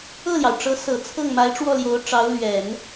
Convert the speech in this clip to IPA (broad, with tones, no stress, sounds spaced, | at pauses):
ɤ˥˩ l j ɑ˩ ʊ̯ ʈ͡ʂ ɤ˧˥ s ɤ˨˩ t͡sʰ ɤ˥˩ ŋ m a˧˥ ɪ̯ ʈ͡ʂ w ɔ˥˩ l j o˧˥ ʊ̯ ʈ͡ʂ ɑ˧˥ ʊ̯ l ɥ ɛ˨˩˦ n